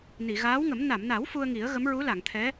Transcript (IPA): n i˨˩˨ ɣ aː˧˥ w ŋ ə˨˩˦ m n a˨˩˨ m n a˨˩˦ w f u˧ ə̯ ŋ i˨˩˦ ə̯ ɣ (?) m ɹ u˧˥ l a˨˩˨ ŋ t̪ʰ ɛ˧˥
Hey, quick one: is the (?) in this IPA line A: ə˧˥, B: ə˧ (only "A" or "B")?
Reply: A